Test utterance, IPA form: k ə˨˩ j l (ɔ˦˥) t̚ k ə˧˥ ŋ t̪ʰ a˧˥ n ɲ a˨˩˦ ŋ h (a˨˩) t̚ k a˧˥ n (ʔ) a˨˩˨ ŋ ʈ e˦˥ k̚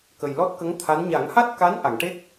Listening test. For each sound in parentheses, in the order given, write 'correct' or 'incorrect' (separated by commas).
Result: correct, incorrect, correct